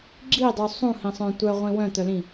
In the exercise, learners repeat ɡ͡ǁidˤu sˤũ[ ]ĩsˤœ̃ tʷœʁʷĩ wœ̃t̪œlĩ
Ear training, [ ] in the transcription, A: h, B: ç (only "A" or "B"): A